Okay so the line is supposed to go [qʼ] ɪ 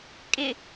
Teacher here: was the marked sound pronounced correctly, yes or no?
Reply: no